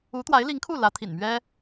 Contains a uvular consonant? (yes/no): no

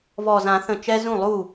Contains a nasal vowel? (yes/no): yes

